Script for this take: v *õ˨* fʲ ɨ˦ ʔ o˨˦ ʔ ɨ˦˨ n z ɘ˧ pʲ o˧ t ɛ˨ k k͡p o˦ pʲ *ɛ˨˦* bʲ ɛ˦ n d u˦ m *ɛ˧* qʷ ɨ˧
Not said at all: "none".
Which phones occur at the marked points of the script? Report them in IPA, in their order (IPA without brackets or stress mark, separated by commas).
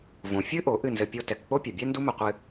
õ˨, ɛ˨, ɘ˧